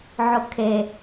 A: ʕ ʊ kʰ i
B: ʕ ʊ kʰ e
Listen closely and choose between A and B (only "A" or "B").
B